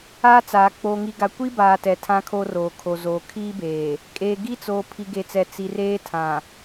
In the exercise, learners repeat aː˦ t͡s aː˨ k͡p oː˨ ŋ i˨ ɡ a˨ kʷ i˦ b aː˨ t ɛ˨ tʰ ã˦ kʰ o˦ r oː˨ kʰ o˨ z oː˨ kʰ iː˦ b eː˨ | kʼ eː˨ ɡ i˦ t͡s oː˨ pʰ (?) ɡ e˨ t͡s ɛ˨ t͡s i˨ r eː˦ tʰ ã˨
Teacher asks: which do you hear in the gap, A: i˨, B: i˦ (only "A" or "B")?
A